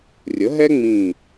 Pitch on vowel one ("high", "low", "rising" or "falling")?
rising